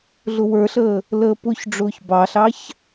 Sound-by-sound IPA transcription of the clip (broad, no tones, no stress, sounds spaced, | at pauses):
ɮ ʊ w ə˞ ɬ əː | l əː p ʊ ç ɖ͡ʐ ʊː ç b ɑ ɬ ɑ ç